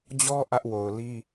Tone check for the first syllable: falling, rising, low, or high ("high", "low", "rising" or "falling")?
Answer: high